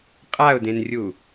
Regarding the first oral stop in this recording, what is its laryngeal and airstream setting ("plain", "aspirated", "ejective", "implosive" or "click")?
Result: ejective